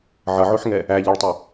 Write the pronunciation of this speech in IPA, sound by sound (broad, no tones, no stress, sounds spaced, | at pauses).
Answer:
ʕ ʌ ʕ o ħ ŋ ɛ | æ ʎ ɛ ɭ tˤ y